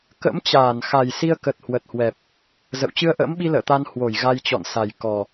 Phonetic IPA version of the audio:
k ə̰˧˥ m t͡ɕ aː˧˩ n x a˨˩ j s i˧ ə̯ k ə˨˩ t̚ h w ə˨˩ t̚ h w ɛ˨˩ p̚ | z ə̰˧˨ w t͡ɕ ɨ˧ ə̯ ʔ ə̰ː˧˥ m ɓ i˧ l ə̰ː˧˨ t̪ a˧ n h w o˧˩ j ɣ a˧ j t͡ɕ ɔ̰˧˨ n s a˨˩ j k ɔ˨˩

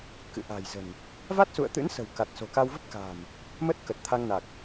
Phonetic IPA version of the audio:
k ɨ̰˧˨ ʔ a̤˨˩ j z ə̤˨˩ n | v a˦˥ t̚ s ṵ˧˨ ə̯ t̪ ɨ̰˧˥ n s ə̤˨˩ w k a˨˩ t̚ s o̤˨˩ k a˧ w v ə˦˥ p̚ k a̤˨˩ m | m ə˦˥ t̚ k ə˨˩ t̚ t̪ʰ a˧ ŋ n a˨˩ k̚

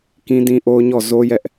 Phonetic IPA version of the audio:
k ĩ˦ d ĩ˦ ʔ o˦ ʊ̯ ɲ ɔ˦˨ z o˦ j ɛ˦ ʔ

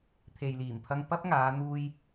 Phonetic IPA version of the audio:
t̪ʰ e˨ j l iː˨˩ m pʰ ɐ˧ ŋ p ɐ˥ p̚ ŋ aː˨˧ n̪ uː˧ j

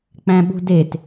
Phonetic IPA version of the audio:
k͡p æ̃ ɓ ṳ d e t

